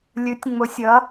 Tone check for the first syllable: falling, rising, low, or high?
rising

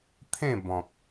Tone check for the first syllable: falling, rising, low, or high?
falling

